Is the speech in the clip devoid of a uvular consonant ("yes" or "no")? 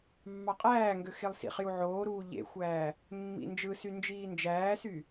no